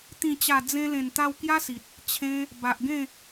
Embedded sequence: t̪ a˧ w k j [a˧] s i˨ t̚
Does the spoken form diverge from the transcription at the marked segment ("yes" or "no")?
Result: yes